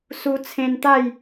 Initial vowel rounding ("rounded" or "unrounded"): rounded